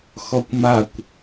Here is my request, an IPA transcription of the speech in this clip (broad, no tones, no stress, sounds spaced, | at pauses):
x ɔ kʷ m a kʷ